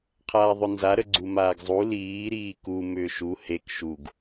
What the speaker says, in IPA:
qʰ aː ðˤ ʏ n z a ɾ ə ɡ͡ǀ u m aː ɡ zˤ u l iː ɾ iː k u m ʏː ʃ u h e k ʃ u ɡ

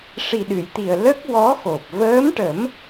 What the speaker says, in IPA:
ʂ i˨˩ ɗ ɨ˨˩˨ j t̪ i˨˩ ə̯ l ə˦˥ k̚ w ɔ˧˥ x o˨˩ p̚ v əː˧˥ m ʈ ə˨˩˦ m

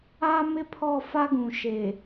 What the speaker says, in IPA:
a˦ m ɪ˦ pʰ ɔ˦˨ f a˦ ɡ ũ˨ ʃ e˨

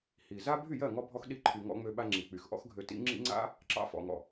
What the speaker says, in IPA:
h i˨ z a˦ bʱ y˦˨ j ɜ˦˨ ŋ ɔ˧ bʱ ɔ˧ x ɗ i˧ ǃʰ y˨ ŋ ɔ̰˧ ŋ͡m ø˧ ɓ a˧ ŋ͡ǁ i˨ k͡p y˨ x ʔ ɔ̰˦ x ɡʱ ø˧ t ḭ˦ ŋ͡ǁ ḭ˦ ŋ͡ǀ a̰˦ | ǁ ɑ̰˧ f ɔ̰˨ ŋ ɔ̰˨

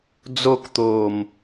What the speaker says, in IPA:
d͡z o k t̪ oː m

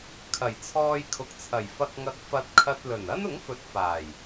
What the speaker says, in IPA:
kʰ ɐ˨˩ j t͡sʰ ɔː˧ j kʰ ʊ˨˥ k̚ t͡sʰ ɐ˨˩ j f ɐ˧ k̚ ŋ ɐ˧ k̚ f ɐ˧ t̚ kʰ ɐ˧ t̚ l ɵ˨˩ n ɐ˥ n ʊ˨˥ ŋ f ɵ˨˥ t̚ f aː˨˩ j

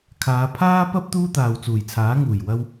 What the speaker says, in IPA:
kʰ aː˨˧ pʰ aː˥ p ɐ˥ p̚ t̪ uː˥ t̪ aː˨ w t͡s uː˨˩ j t͡sʰ aː˨˥ ŋ uː˨˩ j w ɐ˧ w

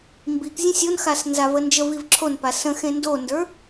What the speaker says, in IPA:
m b i k zʲ ə̃ sʲ o n x a s n z a v ə n d͡ʒ ə v i v ǁʰ o n p a s ə̃ x ẽ n d o n d ə˞

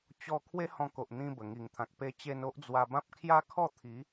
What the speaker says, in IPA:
t͡ɕ ɔ˧ kʰ w e˦ h ɔ̃˧ k o˨ ʔ n̪ ĩ˧ b ə˨˩ ŋ i˨˩ ŋ t̪ʰ ã˨ k̚ p e˧ t͡ɕ e˧ n o˦ ʔ d͡z w a˧ b ã˦ p̚ kʰ j a˦ kʰ ɔ˥˧ t̪ʰ i˨˦

